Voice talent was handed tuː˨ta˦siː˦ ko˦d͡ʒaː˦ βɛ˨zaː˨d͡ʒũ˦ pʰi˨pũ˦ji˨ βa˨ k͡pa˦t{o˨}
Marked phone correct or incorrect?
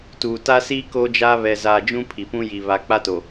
correct